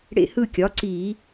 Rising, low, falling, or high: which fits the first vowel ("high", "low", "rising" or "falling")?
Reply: falling